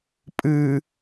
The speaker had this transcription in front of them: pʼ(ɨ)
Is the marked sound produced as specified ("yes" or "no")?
yes